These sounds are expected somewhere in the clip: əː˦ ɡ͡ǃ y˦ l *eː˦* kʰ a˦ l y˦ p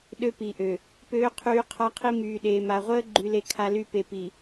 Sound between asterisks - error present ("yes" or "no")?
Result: yes